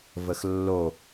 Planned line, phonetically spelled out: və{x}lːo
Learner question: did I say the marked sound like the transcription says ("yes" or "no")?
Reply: yes